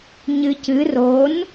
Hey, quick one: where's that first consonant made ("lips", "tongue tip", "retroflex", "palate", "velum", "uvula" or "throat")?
palate